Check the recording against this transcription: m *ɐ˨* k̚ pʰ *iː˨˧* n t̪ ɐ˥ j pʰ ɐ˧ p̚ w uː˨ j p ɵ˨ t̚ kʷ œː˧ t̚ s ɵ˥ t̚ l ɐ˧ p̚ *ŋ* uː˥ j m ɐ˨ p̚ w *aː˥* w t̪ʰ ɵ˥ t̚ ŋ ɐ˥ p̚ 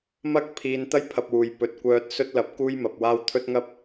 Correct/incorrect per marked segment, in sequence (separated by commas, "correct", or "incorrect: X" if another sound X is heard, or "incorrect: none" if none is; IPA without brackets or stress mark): incorrect: ɐ˥, correct, incorrect: k, correct